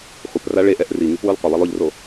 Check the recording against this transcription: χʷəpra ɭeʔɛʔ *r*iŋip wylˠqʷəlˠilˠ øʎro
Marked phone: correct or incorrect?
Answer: correct